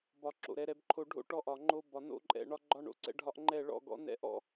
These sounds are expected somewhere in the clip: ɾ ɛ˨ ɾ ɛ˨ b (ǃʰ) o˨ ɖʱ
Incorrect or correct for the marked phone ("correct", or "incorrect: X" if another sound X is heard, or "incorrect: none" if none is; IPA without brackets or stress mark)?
correct